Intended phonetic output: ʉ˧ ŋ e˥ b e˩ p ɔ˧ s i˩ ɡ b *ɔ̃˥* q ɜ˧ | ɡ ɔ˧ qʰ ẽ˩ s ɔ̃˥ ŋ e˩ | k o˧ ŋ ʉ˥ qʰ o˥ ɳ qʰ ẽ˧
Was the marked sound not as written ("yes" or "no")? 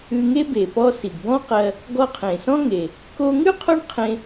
no